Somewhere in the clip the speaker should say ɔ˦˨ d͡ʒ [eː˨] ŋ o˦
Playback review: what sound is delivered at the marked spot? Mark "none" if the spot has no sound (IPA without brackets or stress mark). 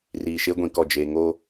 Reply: eː˨